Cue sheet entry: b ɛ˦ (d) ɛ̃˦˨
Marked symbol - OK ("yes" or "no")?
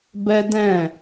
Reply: yes